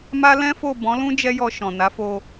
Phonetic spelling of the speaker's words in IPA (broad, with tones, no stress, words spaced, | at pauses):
ma˦ lɛ̃˦fo˦˨ bɔ̃˨˦lũ˦ d͡ʒɛ˦jɔ˧ ʃɔ̃˨ na˨˦fo˧